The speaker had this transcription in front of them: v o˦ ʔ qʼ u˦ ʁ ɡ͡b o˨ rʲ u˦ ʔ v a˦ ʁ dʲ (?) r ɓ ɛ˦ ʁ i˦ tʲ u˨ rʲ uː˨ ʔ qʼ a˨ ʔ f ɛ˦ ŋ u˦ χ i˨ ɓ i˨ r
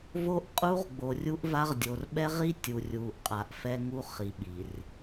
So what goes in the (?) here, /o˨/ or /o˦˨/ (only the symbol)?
o˨